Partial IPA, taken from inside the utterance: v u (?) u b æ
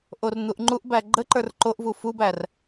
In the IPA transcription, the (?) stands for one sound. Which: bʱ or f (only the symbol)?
f